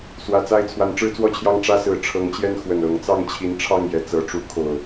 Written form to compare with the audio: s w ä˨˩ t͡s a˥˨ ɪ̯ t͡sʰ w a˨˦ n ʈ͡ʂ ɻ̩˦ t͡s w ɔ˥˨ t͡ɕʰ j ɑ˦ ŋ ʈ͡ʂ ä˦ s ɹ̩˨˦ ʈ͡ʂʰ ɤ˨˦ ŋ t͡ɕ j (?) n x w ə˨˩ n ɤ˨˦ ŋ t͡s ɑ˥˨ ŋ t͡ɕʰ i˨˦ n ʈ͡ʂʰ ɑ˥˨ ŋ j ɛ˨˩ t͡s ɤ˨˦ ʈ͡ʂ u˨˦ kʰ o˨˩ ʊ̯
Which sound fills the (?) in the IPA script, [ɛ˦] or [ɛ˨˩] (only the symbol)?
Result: ɛ˦